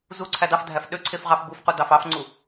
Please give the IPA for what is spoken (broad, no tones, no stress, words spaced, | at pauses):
zu ǀʰædɑfdʱæf ɗøǀʰef ʁɑfbufqu dɑfɑfŋ͡ǀu